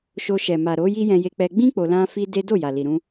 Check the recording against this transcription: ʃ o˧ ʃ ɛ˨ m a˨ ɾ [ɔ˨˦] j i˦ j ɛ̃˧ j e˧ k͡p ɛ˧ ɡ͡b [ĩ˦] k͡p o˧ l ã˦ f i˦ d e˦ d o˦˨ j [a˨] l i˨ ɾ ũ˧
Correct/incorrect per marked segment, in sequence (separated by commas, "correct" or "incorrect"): incorrect, correct, correct